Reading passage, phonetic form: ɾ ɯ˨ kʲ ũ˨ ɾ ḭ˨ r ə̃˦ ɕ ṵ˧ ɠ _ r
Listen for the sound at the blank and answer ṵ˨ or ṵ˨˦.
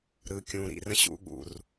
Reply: ṵ˨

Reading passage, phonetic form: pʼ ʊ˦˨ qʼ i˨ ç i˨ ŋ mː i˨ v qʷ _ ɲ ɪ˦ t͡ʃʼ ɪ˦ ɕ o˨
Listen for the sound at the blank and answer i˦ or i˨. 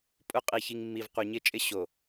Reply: i˨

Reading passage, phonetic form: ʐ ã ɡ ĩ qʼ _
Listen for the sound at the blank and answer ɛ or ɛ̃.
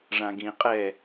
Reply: ɛ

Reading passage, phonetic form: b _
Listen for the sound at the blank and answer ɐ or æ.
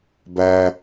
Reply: æ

